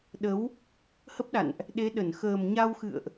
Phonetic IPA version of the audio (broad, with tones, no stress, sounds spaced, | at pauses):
ɗ ə˨˦ w | h ə˦˥ p̚ ɗ a̰˧˨ n ʔ | ɗ e˨˦ ɗ ə˧˩ n x əː˨˩ m ɲ a˧ w x ɨ̰˧˨ ə̯ ʔ